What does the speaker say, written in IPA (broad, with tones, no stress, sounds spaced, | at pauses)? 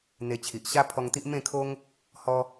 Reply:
n̪ e˧ t͡ɕʰ i˨ ʔ ɕ a˦ pʰ ɔ˧ ŋ t̪ i˦ ʔ m ẽ˥˧ kʰ o˦ ŋ | h ɔ˦